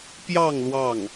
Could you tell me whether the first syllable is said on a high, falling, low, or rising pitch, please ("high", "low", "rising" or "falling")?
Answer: falling